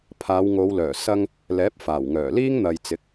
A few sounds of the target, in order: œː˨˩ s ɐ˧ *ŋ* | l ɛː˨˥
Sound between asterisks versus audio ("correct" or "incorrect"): correct